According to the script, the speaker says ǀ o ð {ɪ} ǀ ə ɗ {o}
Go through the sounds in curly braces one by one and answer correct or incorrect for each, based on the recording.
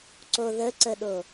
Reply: incorrect: ə, correct

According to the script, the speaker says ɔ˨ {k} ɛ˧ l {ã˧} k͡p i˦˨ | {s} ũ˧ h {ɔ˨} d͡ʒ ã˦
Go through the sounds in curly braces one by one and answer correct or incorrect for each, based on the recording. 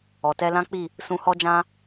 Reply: incorrect: t, incorrect: ã˦, correct, incorrect: ɔ˦

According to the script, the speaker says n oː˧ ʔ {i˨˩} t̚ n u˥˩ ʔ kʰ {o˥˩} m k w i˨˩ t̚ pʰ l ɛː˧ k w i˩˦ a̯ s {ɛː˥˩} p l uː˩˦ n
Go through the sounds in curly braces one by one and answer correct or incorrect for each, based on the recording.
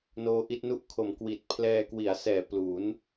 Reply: incorrect: i˦˥, incorrect: o˩˦, incorrect: ɛː˨˩

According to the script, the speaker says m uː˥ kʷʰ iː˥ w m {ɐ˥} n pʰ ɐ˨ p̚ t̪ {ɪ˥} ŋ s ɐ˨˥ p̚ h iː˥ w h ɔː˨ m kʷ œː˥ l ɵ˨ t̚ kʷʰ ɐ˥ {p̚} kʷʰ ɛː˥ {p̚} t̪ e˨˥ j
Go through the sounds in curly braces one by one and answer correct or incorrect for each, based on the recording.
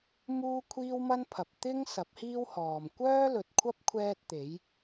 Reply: correct, correct, correct, incorrect: t̚

